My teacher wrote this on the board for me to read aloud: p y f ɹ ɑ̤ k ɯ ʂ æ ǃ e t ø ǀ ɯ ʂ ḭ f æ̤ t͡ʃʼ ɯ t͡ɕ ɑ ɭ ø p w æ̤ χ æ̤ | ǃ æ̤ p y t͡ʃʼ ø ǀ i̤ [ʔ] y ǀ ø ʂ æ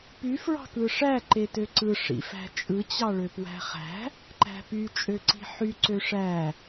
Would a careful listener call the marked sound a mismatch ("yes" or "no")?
yes